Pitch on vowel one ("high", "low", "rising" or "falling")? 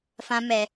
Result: high